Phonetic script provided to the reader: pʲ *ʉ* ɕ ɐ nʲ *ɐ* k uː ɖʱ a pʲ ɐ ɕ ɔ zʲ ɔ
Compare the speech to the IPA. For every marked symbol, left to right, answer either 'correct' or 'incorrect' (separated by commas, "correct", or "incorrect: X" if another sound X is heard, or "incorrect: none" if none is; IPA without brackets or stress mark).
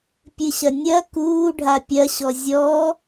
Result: incorrect: ɨ, correct